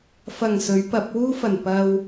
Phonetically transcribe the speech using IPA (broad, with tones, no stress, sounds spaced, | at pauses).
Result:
f ɐ˨˩ ŋ s ɵ˨˥ ɥ p ɐ˨˥ p̚ w uː˥ f ɐ˨˩ n p ɐ˧ w